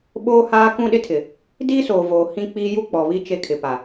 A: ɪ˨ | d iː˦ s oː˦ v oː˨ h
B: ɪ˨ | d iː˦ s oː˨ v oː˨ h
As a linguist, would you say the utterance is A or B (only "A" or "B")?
B